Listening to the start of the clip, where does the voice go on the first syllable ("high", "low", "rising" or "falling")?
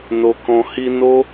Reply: low